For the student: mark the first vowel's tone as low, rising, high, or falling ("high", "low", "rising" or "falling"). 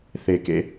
low